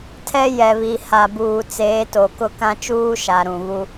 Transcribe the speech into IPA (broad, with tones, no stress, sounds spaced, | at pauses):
tʰ ɛ˦ j ɛ˨ β i˨ h a˨ b uː˨ t͡s eː˨˦ t o˨ k ʊ˦ k ã˦ t͡ʃ uː˦ ʃ a˨ ɾ ũ˨ β u˦